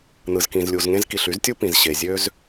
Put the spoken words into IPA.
n̪ ɯ˩ z k ĩ˩ z lʲ u˩ z ŋ ẽ˥ z k i˩ ɬ y˥ z tʲ u˥ p ĩ˩ z ɕ e˩ zʲ ø˥ z

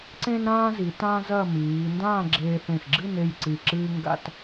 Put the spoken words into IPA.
ǀ ẽ˥ n ɾ ãː˥ z i˩˧ t ã˥ z ɐ˥˧ m iː˩˧ n d ãː˥˧ ɡ͡ǁ eː˧ θ ẽ˧˩ x ɡ͡ǁ ɨ˥˧ n e˥˧ j ǀ i˧˩ ǁ ɨː˥ ŋ ɡ a̰˥ t

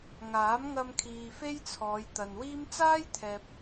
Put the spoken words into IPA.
ŋ aː˨˥ m ŋ ɐ˧ m kʰ iː˨ f e˥ j t͡sʰ ɔː˨˧ j t̪ ɐ˨ n w iː˥ m t͡s aː˥ j t̪ʰ ɛː˨ p̚

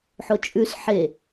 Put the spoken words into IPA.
ħ o t͡ʃʼ ʉ s ħ e

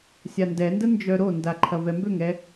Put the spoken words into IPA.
sʲ a n d ɛ n d ə n d͡ʒ œ ɾ o n d a ǃʰ ɐ v ɛ m b ø ŋ ɛ

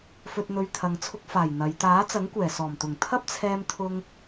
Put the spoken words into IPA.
f ɵ˧ t̚ n̪ ɵ˧ ɥ t̪ʰ ɐ˨˧ ŋ t͡sʰ ʊ˧ k̚ f aː˨˩ j n̪ ɐ˨˧ j t̪ aː˨˥ t͡s ɐ˨˥ ŋ kʷ ɛː˨˩ s ɔː˨˩ m t̪ ʊ˨˩ ŋ t̪ʰ ɐ˥ p̚ t͡sʰ ɛː˧ m t̪ʰ ʊ˧ ŋ

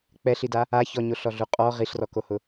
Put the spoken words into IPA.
k͡p ɛ ɬ i d a | a ç ɔ ɲ o ɬ ɔ ɮ u qʼ ɔ ʁ i ɬ r ɔ k o h ʊ

